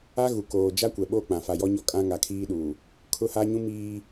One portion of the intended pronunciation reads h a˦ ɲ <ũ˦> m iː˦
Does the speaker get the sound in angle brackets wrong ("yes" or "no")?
no